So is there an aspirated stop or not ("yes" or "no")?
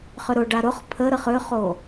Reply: yes